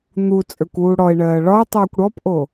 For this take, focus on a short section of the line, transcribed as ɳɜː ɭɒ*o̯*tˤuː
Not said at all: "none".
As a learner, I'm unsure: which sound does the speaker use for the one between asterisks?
e̯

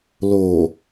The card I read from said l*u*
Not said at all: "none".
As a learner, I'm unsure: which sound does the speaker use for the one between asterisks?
o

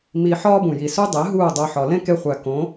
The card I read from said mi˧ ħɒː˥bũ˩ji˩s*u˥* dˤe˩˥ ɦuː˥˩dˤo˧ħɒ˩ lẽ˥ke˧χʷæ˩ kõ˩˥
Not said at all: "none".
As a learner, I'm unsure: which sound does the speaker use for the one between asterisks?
u˥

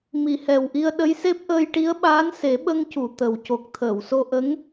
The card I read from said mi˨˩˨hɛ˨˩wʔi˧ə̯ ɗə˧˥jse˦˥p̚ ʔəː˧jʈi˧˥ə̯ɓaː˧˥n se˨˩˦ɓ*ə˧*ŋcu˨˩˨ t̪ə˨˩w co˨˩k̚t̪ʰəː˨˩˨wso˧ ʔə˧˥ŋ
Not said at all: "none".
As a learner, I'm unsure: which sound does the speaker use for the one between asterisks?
ə˧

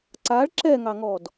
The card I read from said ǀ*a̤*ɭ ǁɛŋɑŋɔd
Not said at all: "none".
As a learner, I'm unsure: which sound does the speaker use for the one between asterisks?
a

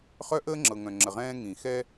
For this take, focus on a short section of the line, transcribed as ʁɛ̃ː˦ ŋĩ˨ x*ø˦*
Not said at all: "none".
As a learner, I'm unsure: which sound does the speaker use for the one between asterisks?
ɛ˦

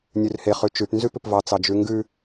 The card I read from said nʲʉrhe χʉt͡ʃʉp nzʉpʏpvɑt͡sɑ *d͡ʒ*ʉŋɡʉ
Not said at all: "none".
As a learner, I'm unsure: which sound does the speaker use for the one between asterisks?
d͡ʒ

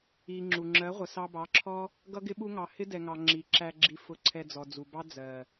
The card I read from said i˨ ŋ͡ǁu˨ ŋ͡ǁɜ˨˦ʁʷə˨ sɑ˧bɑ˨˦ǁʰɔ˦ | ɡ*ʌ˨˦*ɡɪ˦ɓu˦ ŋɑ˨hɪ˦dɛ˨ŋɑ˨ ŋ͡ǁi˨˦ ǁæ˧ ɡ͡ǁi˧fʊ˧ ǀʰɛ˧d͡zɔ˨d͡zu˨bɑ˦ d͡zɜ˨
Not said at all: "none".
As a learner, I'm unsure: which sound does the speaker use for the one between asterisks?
ʌ˦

